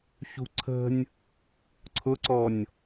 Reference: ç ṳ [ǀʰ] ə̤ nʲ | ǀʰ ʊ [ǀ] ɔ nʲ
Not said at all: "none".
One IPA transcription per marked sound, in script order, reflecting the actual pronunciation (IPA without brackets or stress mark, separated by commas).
ǀʰ, ǀ